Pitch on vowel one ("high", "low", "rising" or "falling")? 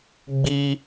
high